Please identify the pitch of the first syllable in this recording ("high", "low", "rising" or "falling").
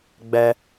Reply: high